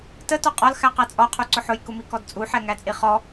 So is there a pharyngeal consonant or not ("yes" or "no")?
yes